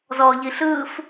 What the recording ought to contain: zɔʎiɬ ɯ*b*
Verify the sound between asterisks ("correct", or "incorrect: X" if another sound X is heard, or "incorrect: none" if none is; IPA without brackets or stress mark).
incorrect: f